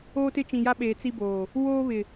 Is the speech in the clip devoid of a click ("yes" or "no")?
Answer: yes